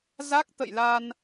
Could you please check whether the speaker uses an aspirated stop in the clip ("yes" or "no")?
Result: no